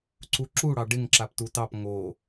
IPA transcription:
ǀ u ǁ u ɽ ɑ ɖ ɪ ŋ ǁ a p t u t ɑ p ŋ o

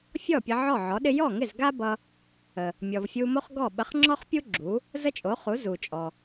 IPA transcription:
fʲ ɔ˥˩ pʲ ə˧ ʕ ɔ˥˩ ʕ ɔ˩˥ ɗ ɪ˥ j ɔ˥˩ ŋ ɪ˥˩ z ɡ a˥ b ʌ˧ | ə˩ | mʲ ɔ˩ v fʲ u˧ m o˥ χ ɡ ɔ˥˩ ɓ ə˧ χ ŋ͡ǁ ɔ˥ χ pʲ u˥ ɡ͡ǁ u˩˥ | z ə˥ t͡ʃʼ o˩˥ χ u˩˥ z u˩ t͡ʃʼ ɔ˩

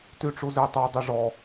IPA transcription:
t y ʈ͡ʂ u z e tˤ œ dˤ e ʐ ɔ

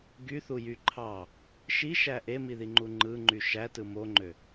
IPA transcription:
ɡ y θ u j y ǃʰ ɑ | ʃ i ʃ æ ʔ e m i ð i ŋ͡ǃ u ŋ͡ǃ ɯ ŋ͡ǃ y ʃ æ t ɯ m o ŋ͡ǃ ø

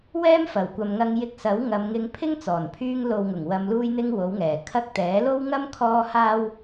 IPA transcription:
w ɛː˥ m f ɐ˨˩ w kʷ ɐ˨ m ŋ ɐ˧ ŋ j ɪ˧ k̚ s ɐ˨˥ w ŋ ɐ˨˧ m ŋ ɪ˧ ŋ pʰ ɪ˥ ŋ t͡s ɔː˨˩ n pʰ yː˧ ŋ l o˨ w ŋ ʊ˨˩ ŋ w ɐ˧ m l uː˥ j n̪ ɪ˥ ŋ w o˨˥ w ŋ ɛː˨˩ kʰ ɐ˥ k̚ t̪ ɛː˨˥ l o˥ w ŋ ɐ˥ m kʰ ɔː˥ h aː˥ w

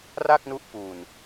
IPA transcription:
r a˥˩ k̚ n u˦˥ ʔ p u˨˩ n

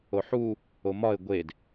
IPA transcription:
o ħ u | o m ɒ ɪ̯ ɡʷ e d

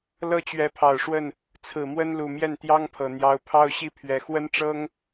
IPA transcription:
l ɤ˥˩ t͡ɕ ɥ ɛ˧˥ pʰ ɑ˨˩ ʊ̯ ʂ w ə˥˩ n | t͡sʰ ɹ̩˨˩ m w ə˥ n l u˨˩ m j ɛ˥˩ n t̪ j ɑ˥ ŋ pʰ ɤ˨˩ n̪ j ɑ˧˥ ʊ̯ pʰ ɑ˥˧ ʊ̯ ɕ i˥˩ pʰ ɥ ɛ˨˩ x w ə˥ n ʈ͡ʂ ɤ˥ ŋ

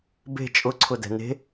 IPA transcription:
b e̤ t͡ʃʼ ʊ ǀʰ ʊ d ɛ̤ n e̤

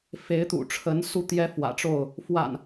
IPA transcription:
f e˨˦ ɪ̯ t̪ ṵ˨˩ ʈ͡ʂʰ ə˨˦ n s u˧ t̪ j ɛ˦ f w ä̰˨˩ ʈ͡ʂ o˥˨ ʊ̯ | f w a̰˨˩ n

